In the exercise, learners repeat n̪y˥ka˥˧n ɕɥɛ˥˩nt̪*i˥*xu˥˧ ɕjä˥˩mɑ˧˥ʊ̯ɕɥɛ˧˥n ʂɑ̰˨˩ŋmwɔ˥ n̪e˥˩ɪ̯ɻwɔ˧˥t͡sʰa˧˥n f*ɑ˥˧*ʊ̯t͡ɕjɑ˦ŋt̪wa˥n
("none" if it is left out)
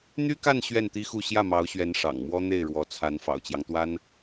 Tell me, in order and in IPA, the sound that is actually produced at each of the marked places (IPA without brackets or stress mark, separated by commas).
i˥, ɑ̰˨˩